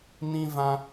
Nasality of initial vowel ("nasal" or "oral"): nasal